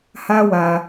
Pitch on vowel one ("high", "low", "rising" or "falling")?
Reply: high